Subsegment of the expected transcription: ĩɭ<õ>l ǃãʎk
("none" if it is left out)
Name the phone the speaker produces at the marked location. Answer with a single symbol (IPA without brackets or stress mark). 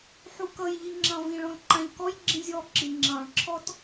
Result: ɔ̃